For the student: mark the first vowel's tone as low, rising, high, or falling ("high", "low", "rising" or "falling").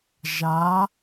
rising